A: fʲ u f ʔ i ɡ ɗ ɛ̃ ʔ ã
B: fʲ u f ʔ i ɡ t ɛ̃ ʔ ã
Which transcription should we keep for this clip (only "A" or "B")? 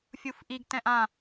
B